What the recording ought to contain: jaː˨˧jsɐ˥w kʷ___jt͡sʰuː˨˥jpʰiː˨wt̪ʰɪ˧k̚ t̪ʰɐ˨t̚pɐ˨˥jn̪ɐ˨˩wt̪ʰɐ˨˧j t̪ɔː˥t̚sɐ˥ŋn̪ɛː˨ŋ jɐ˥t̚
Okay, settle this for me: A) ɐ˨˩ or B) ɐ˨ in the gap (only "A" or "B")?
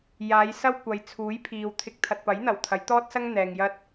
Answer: B